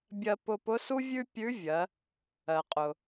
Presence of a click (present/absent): absent